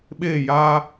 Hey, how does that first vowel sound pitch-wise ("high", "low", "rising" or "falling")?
falling